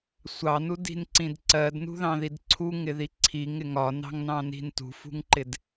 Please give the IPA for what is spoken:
sʷɑnudi̤nǀĩd ǀɜdnṳðɑ̃ðid ǀʰuŋɪði ǀʰiŋɪ ŋɒnɑ̤ŋnɑ̃ni̤n tṳfṳŋǃɪd

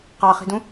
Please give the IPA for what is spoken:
qɑχi̤dũ

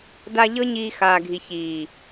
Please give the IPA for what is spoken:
da˧ ʎɤ˦ɲiː˧ xaː˨ɡʱi˨ çiː˨

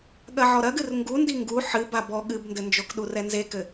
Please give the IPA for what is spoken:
ɠɐʕɔɾɐɡɨr ŋɡundi ŋɡu ħɨba bɔ ɠɨbndɘnd͡ʒok ɗurɛnzekɘ

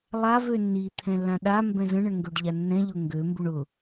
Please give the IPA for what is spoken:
lˠav ønːi t̪ʰɛ̃lːãɗa mbɛ̃zə̃ ɳəɳŋɡøɖʎanːɛ̃ ʎʊŋɡø mbuɳʊ

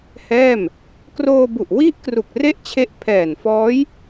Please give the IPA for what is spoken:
hɛː˥˩m | kroː˧bu˨˩ʔwi˦˥ʔkru˨˩k̚ re˥˩ʔt͡ɕʰe˦˥ʔ pʰɛː˨˩nfɔː˦˥j

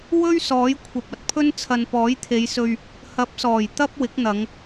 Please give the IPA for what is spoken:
wɵ˥ɥ sɔː˨˥jkʷʰɐ˨p̚ɐ˨t̚pʰɵ˥n t͡sʰɐ˨npɔː˨˥jt̪ʰe˨˧jsɵ˧ɥ | hɐ˨˥p̚sɔː˨˩j t̪ɐ˥p̚ wɪ˨˥k̚n̪ɐ˨˧ŋ

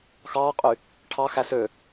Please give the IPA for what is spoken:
xɑːqʼy | ʈʰɑxæ sø

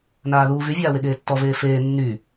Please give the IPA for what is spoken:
naːðuːvy vʲaːweɠeːtːɔ veːfeː nːy

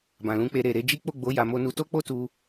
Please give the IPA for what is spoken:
bã˨lũ˨˦k͡pe˧ ɾe˨ɾe˧d͡ʒi˦ k͡po˦˨ɡ͡bo˨˦ ja˧mo˦nu˦ to˦k͡po˦tu˧

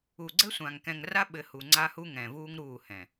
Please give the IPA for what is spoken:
u˨ɡ͡ǀɘ˦sʷã˨ŋ kɛ̃˨ŋra˦ɓɘ˨ hu˨ŋ͡ǀa˦hu˦ ŋɛ̃˨vuː˦ŋɾuː˦˨hɛ̃˨

